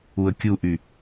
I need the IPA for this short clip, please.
u ə̯ kʲ u ʔ y

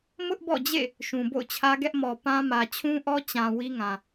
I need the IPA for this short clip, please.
m ʊ˦ ʔ b ɔ̰˦˨ d͡ʑ ḛ˦˨ | ʃ ũ˨ b o̰˦˨ ʊ̯ t͡ɕʰ ä˦ ɡ ɛ˦ ʔ m ɔ˨ p ã˦ m ä˨ t͡ɕʰ ũ˦ ʔ ɔ˦ t͡ɕ ã˨ w i˦ ŋ ã˨

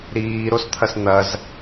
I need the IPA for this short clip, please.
ɾ iː ɾ o s t̪ʰ ɐ s n̪ ɐ z

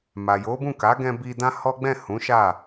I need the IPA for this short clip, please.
m a˨ j o˨˦ b ũ˦˨ k a˨˦ ɡ ɛ̃˧ b i˧ d ã˦ h ɔ˦ ɡ͡b ɛ̃˦˨ h ũ˨˦ ʃ a˦˨

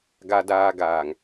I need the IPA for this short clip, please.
ɡ a˨ d aː˨ ɡ aː˨ ŋ

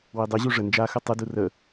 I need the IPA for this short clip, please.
w i dˤ ɯ ʑ u ʐ ə n d͡ʒ a x ɯ tˤ ɯ d u r ə

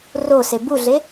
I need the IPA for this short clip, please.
r o s e b u ɮ e

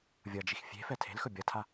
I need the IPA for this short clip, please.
vʲ ʌ d͡ʒ i x fʲ e̤ f ɛ tʰ e̤ l x ɵ bʲ ʌ tʰ a

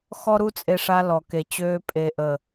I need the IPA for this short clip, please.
x ɔ˦ ɾ u˦ t͡sʼ e˧ ʂ a˧ l ɔ˨ k e˨ t͡ɕ øː˧ pʼ e˨ ʔ ə˨

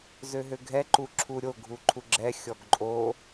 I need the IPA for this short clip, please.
z ø ɦ ø ɡʱ ɛ ǃ u ǁʰ u ɾʲ o ɡʱ u ǃʰ u ɡ͡ǁ ɛ xʲ ɔ ɡ ǃʼ o

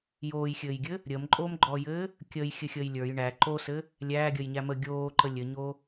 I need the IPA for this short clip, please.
j oː j xʲ ɘː j ɡʲ ɘ | ɾʲ əː m ǃʼ oː m ɡ͡ǃ ɔː j ɘː | kʲ əː j xʲ ɘ xʲ əː j lʲ ə˞ j ɳ æ ǃ o s ɘ | lʲ æː ɡʲ əː j ɲ æ m ə ɡʲ oː ǃ ə lʲ ɘ ɲ o

